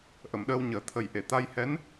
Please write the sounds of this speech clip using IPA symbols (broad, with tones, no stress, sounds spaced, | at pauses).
ʔ ə˨˩˨ m ɗ əː˧ w ɲ əː˨˩˦ t̪ʰ ə˨˩ j ʔ e˨˩˨ t̪ a˧ j h ɛ˧˥ n